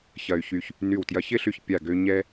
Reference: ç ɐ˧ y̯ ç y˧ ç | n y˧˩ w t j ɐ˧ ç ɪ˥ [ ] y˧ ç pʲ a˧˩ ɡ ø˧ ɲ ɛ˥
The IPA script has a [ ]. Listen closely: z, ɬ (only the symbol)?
ɬ